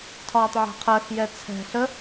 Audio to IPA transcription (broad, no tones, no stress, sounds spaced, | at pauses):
tʰ ɒː tˤ ʕ ɛ̤ qʰ ɜ x j ɛ t͡sʰ ɛ̤ ɬ ə